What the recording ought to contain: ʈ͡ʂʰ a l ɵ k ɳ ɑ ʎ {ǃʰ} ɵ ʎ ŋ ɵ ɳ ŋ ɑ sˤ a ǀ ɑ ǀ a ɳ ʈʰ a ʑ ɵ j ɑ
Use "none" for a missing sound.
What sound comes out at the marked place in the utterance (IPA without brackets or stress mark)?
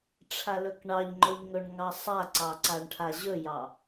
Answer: ŋ͡ǃ